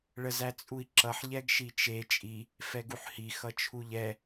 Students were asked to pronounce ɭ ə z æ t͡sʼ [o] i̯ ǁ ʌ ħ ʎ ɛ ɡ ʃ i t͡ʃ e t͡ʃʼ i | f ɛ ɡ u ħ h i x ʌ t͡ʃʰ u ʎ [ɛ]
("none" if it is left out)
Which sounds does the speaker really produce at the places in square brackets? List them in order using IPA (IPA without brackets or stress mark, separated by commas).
u, ɛ